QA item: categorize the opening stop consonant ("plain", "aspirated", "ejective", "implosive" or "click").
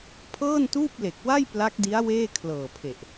aspirated